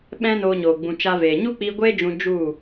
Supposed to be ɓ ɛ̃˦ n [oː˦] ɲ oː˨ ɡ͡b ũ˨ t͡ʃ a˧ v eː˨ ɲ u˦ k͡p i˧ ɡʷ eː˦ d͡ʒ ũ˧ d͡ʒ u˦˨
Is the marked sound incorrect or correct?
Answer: incorrect